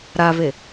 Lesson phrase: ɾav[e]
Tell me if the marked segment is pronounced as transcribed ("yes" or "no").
yes